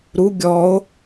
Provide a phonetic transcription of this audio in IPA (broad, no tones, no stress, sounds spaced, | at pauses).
ɾ u ɡʲ ɔ o̯